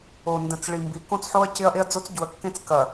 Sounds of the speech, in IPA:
o˨ n d ə̃˨ t͡s ɭ i˨ m b i˨˦ k õ˦ t͡s ħ o˦ ɐ̯ c ɪ˦ ɐ̯ ʔ e˦ ɐ̯ d͡z o˦ t͡s ɟ u˨ ɐ̯ kː ẽ˦ t͡s k ɐ˨

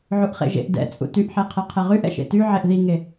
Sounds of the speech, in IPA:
ʕ u ʔ χ ḛ ʒ ḛ ʔ d ɛ̰ t͡sʼ ṵ t y ʔ ħ e qʰ ɛ qʰ ɛ ʁ y ʔ ɛ̰ ʃ ḛ t y ʕ e ʔ ð i ŋ e

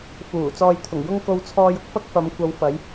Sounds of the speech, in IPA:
f uː˨˩ t͡s ɔː˧ j t̪ʰ ʊ˨˩ ŋ j ʊ˥ ŋ k o˧ w t͡sʰ ɔː˧ j ʊ˧ k̚ f ɐ˥ k̚ f ɐ˨˧ m kʷ ɐ˨˧ w f ɐ˨˧ j

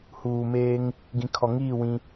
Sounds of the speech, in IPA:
h uː˨ m eː˦ ŋ | ɡ ĩ˨ kʰ ɔ˨ ŋ iː˦˨ w ĩ˦

